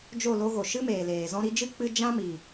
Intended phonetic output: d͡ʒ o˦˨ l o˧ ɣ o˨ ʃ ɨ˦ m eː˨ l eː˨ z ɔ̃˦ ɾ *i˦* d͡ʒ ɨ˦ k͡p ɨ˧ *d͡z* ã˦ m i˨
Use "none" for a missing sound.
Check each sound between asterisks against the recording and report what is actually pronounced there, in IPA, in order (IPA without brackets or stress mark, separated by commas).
i˧, d͡ʒ